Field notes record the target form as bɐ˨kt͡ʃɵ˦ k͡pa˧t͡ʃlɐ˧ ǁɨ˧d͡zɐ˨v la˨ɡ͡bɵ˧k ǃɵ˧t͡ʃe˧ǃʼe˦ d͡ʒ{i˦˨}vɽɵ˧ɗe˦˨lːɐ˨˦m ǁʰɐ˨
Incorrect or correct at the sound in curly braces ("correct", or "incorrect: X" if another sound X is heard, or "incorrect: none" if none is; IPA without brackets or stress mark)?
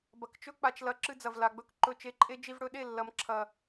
incorrect: i˧